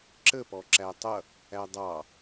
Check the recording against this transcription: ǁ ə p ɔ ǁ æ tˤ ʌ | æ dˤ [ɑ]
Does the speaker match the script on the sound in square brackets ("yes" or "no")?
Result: yes